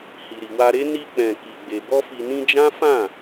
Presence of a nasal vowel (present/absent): present